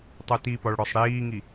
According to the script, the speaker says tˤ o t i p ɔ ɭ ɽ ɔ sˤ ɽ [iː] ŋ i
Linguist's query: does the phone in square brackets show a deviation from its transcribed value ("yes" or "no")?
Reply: no